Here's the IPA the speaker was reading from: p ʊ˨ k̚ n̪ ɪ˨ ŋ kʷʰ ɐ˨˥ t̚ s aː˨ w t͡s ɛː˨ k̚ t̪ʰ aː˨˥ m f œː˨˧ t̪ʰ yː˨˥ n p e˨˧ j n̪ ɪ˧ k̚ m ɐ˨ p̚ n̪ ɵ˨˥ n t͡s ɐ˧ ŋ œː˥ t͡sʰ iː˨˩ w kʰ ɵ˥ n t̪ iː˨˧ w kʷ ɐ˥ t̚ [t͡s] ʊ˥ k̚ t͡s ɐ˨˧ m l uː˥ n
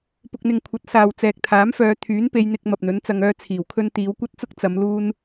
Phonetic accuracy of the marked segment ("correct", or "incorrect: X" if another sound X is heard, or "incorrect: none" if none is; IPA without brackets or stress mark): correct